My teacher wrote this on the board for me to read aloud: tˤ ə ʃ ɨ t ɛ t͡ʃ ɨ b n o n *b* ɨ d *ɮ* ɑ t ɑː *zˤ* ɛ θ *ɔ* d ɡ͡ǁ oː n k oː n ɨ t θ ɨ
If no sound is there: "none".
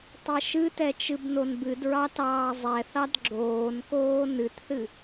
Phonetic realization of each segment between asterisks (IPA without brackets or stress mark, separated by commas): b, ɹ, zˤ, ɑ